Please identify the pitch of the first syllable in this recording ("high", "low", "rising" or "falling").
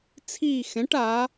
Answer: falling